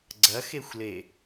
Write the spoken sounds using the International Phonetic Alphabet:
ɡ͡ǀ ɐ x e xʷ l e

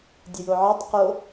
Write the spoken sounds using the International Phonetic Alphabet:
dʲ ɘ j o ʕ ɘː tˤ q o

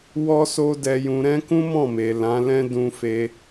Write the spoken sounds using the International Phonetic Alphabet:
w ɔ˦ s o˦ d ɛ˧ j ũ˧ ɾ ɛ̃˦ k ũ˦ m ɔ̃˦˨ m e˨ l ã˨˦ l ɛ̃˦ d ũ˧ f e˧

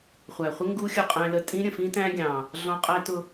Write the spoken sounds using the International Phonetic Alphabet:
χʷ æ˨ χʷ ɪ˦ ŋ ɡ u˦ xʲ ʊ˦˨ qʼ æ̃˦ l ə˦˨ tʼ ĩ˦ ɾʲ ə̃˨ f ĩ˦ t æ̃˦ ɡʲ ɑ̃˨ | ɮ ɔ̃˦ qʼ æ˦ t ʊ˦

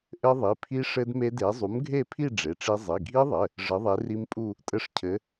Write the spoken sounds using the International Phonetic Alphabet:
ʔ ɘ˦˥ ðˤ i˩˧˩ pʰ i˦˥ ʂ ɘ˦˥ d m e˦˥ d e˨˥ zˤ u˨˥ m ɡʱ e˥˧ pʰ i˥˧ ɖ͡ʐ e˩˧˩ ʈ͡ʂ i˦˥ zˤ i˩˧˩ ɡʱ i˦˥ ðˤ ɘ˩˧˩ | ʐ ɘ˨˥ ðˤ e˨˥ r i˦˥ m pʼ u˥˧ | tʼ ɘ˦˥ ʂ cʰ ɘ˨˥

